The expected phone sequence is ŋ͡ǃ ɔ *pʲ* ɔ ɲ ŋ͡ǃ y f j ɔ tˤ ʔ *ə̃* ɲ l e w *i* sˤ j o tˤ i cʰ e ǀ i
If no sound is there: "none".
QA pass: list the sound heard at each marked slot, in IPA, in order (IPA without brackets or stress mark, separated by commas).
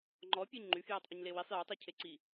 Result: pʲ, ə, i